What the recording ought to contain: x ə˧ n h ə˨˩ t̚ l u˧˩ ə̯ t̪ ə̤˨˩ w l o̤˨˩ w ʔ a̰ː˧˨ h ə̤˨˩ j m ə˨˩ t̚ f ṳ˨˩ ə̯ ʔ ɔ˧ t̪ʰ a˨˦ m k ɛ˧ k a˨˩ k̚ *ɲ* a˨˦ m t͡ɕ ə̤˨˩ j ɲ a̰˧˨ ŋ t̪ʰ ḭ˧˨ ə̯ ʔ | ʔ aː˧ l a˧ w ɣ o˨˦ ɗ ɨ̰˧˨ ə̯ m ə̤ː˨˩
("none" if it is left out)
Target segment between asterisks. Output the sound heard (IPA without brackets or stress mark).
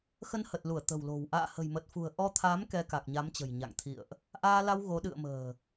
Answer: ɲ